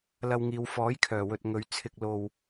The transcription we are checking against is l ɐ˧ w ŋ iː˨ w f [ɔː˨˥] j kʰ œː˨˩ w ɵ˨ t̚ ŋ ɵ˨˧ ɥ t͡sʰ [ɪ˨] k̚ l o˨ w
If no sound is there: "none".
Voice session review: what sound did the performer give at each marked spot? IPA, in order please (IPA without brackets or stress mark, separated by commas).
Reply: ɔː˨˥, ɪ˨